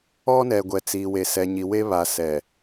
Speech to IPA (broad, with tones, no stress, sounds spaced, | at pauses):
ɔ˦ n ɛ˨ ɡʷ ɛ˨ t͡s iː˨ w e˨ s ɛ˨ ɲ i˨ w e˦ β a˨ s ɛ˨